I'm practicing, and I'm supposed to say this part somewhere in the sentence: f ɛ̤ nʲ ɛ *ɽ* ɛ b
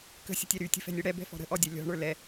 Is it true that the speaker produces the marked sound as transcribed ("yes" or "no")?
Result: yes